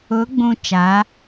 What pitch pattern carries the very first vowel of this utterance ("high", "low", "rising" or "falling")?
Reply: rising